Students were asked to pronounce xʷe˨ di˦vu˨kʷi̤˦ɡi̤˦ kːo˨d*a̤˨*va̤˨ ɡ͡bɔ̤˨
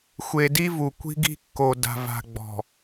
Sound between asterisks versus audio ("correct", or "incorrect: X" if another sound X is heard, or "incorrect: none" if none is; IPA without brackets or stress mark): correct